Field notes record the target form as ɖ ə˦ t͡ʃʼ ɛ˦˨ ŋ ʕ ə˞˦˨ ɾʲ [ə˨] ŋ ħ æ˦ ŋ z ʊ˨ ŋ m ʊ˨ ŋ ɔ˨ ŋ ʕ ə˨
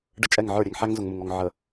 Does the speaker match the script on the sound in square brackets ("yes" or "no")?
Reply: no